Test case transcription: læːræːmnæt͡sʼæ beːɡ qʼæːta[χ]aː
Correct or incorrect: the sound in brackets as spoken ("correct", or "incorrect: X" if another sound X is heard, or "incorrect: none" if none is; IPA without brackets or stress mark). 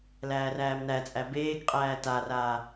incorrect: r